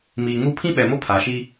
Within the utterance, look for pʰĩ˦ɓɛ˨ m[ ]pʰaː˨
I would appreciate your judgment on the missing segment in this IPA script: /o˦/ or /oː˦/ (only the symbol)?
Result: o˦